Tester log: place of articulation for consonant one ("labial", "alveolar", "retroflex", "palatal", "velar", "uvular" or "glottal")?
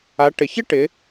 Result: retroflex